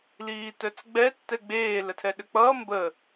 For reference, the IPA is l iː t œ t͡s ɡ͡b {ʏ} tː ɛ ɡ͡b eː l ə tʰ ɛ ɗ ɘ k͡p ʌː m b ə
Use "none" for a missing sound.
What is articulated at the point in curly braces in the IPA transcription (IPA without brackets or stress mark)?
ɛ